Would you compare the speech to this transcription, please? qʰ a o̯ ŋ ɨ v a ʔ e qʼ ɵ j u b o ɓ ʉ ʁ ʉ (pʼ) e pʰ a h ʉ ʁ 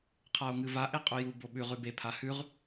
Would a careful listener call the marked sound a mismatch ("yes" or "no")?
yes